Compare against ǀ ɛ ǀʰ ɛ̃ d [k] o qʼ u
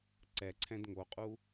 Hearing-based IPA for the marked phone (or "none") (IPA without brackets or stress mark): ŋ